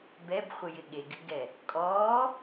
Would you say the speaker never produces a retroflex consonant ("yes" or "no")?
yes